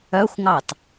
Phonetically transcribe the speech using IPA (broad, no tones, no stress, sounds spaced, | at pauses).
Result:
œ xʷ ŋ ɑ t